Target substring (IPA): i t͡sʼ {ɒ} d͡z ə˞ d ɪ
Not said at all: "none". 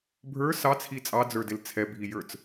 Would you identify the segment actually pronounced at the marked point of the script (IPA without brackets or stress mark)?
ɑ